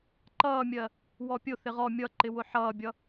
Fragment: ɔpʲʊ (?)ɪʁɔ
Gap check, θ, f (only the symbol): θ